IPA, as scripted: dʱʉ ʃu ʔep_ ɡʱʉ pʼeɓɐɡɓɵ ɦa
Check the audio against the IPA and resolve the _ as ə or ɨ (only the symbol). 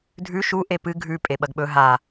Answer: ɨ